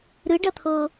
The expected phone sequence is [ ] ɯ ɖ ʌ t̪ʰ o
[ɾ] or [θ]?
ɾ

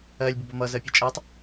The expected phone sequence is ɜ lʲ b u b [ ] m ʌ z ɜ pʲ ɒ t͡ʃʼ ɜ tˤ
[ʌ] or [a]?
ʌ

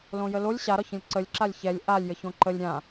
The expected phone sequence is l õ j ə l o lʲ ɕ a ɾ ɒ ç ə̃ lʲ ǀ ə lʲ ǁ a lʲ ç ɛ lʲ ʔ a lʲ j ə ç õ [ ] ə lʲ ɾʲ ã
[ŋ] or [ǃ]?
ǃ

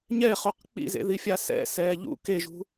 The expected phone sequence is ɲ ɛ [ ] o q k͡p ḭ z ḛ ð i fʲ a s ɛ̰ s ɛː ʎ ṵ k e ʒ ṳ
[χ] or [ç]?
χ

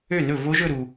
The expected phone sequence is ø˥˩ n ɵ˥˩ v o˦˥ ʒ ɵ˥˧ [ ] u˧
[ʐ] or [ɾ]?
ɾ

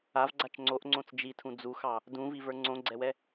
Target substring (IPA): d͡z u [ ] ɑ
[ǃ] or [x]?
x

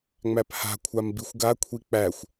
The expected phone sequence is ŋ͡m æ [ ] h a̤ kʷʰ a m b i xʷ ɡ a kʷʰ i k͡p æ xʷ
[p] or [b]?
p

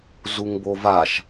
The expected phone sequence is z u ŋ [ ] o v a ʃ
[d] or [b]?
b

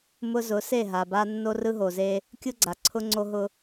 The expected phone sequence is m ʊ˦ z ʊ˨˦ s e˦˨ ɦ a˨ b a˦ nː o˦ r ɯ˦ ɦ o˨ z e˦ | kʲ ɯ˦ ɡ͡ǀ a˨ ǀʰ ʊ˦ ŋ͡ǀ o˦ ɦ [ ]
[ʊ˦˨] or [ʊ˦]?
ʊ˦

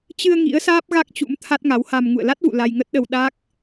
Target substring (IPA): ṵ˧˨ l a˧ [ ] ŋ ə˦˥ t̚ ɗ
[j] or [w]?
j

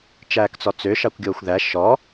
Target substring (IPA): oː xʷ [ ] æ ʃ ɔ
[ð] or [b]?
ð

